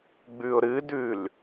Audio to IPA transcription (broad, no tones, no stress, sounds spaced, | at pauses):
ɡ͡b ʉ ʊ̯ ɾ ɨ d ʉ l